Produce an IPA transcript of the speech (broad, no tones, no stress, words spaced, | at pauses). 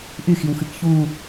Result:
ʔyxiwxɨk çu